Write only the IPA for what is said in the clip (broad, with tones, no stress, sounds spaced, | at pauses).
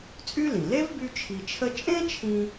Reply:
t͡sʼ y˥ l ĩ˩ l e˥ v b y˥ t͡ʃʰ i˧ t͡ʃʰ ə˥ t͡ʃʼ ẽ˥ t͡ʃʰ ĩ˧